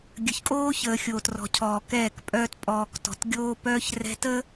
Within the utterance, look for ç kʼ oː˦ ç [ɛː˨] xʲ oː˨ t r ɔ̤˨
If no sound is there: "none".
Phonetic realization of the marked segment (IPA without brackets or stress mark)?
əː˨